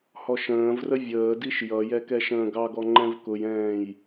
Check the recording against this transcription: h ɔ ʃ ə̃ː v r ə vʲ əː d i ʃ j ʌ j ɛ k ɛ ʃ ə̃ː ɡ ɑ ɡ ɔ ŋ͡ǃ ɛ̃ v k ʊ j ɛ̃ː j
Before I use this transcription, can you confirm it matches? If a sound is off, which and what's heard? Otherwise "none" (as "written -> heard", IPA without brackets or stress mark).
none